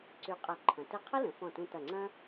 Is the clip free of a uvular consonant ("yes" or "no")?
no